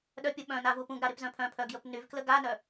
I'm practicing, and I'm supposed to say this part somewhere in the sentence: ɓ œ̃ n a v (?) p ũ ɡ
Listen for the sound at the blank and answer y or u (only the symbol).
u